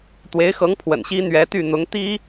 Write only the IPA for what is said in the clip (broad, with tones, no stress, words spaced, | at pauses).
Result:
t̪we˧˥ɪ̯xɤ˧˥ŋpʰwə̰˨˩n ɕi˥ n̪ɥɛ˧˥t̪y˥˩ n̪ʊ˧˥ŋt̪i˥